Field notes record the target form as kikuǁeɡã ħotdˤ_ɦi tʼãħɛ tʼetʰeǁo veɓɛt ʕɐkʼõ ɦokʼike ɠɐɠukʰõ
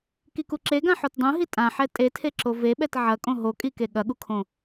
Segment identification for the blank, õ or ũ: ũ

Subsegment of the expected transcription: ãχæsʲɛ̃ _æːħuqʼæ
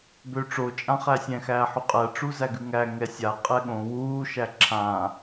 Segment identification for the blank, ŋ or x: x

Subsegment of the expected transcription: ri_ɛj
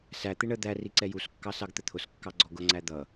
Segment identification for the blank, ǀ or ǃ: ǀ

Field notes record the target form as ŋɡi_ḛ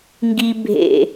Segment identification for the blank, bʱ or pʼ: bʱ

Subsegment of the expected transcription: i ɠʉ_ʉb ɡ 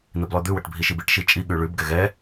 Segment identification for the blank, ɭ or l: ɭ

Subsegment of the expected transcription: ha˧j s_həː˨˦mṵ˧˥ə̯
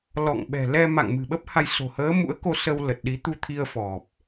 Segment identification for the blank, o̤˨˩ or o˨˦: o̤˨˩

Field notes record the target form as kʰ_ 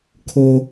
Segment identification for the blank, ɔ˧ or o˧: o˧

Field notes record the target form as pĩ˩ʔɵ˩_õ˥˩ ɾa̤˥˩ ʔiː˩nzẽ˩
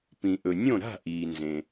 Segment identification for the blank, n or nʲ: nʲ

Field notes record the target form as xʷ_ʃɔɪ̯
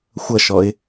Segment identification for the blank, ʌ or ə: ʌ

